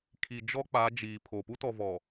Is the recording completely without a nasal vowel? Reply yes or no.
yes